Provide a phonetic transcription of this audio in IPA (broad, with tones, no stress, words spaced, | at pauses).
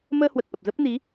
məː˧hwə˨˩t̚ʔə˨˩p̚ zə˦˥p̚ni˨˦